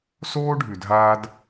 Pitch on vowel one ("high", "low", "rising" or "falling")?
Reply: high